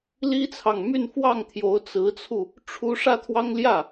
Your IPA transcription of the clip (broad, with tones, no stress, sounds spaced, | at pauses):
l i˥ t͡sʰ ɑ˨ ŋ m y˥˧ n f w ɑ˥˩ ŋ t̪ʰ j o˧˥ ʊ̯ t͡s ɹ̩˧˥ t͡sʰ u˧ | ʈ͡ʂʰ u˥ ʂ ä˥˩ t̪ʰ w ɑ˥ ŋ l j ä˥˩